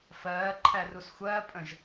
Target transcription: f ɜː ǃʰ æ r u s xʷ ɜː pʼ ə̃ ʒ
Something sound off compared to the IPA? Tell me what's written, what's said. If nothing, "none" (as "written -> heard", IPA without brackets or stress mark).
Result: none